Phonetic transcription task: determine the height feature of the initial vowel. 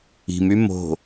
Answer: high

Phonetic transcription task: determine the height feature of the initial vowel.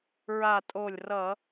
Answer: low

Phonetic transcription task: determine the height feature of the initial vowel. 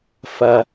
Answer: low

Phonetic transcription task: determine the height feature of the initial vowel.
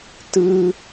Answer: high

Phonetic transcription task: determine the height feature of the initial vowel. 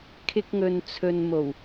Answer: high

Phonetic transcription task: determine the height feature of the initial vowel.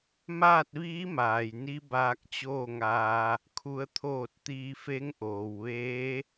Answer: low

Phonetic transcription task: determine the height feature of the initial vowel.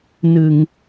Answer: high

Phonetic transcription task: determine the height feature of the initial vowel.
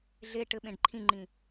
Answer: mid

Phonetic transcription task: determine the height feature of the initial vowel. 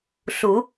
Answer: high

